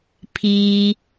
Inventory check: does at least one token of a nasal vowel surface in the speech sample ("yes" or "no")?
no